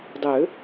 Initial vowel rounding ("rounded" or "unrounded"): rounded